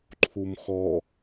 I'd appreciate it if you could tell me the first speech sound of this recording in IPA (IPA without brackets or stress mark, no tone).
ǃʰ